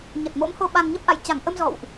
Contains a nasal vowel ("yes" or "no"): no